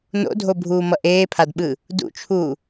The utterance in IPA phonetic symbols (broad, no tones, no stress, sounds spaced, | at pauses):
n o̰ dʱ o bʱ uː m ʌ ʔ eː pʰ a d ɓ ɯ | d ṵ t͡ʃʰ uː